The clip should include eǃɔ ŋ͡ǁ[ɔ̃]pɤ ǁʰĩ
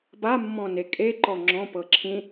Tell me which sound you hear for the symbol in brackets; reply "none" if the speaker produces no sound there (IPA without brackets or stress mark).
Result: ɔ̃